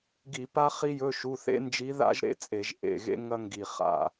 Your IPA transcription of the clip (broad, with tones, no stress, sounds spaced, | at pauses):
ɡ i˧˩˧ p a˥ χ i˥ j ɵ˧˥˧ ʃ u˧˥˧ θ ḛ˥ n d͡ʒ i˧˥ ð a̰˥ ʒ ɾ ḛ˧˥˧ t͡sʼ e˧˩˧ ʒ ʔ ḛ˨˩ ɣ ḛ˥ ŋ ɐ˥ ŋ ɡ i˨˩ χ a̰˨˩